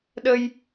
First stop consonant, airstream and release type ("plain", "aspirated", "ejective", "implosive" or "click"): implosive